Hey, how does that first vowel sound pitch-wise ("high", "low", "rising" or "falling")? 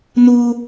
high